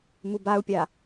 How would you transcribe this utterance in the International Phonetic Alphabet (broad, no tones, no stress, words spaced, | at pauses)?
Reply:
mubau̯pʲa